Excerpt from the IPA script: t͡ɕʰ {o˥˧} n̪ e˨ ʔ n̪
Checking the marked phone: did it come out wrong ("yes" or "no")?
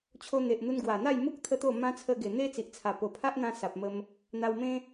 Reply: yes